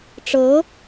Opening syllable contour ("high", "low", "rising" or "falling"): rising